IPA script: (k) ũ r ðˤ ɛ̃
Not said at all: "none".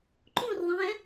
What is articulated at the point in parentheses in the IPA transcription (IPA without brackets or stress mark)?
ǃ